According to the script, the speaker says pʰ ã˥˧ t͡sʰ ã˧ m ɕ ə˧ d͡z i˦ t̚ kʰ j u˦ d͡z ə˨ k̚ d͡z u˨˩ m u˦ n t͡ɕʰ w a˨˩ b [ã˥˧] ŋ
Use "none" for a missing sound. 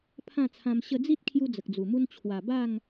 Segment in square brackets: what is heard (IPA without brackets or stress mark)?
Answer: a˥˧